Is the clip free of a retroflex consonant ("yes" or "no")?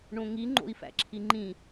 no